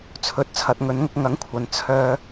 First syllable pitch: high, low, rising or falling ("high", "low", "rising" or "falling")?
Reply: rising